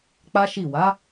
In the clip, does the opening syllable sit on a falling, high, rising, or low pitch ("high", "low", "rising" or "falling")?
high